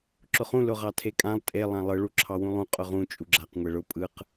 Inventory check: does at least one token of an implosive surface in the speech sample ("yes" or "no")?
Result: no